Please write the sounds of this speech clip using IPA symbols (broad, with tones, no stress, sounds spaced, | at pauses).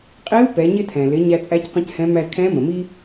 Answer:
qʼ i˧˥ u̯ p ɛ˩˧ ɲ ɪ˧ tʰ ɛ̃˩ l ɪ˩˧ ɲ æ˧ t͡sʼ æ˧˥ c qʷ ə̃˧˥ c h ɛ̃˧˥ m æ˧ z kʰ ɛ̃˧˥ m ə̃˩ m i˥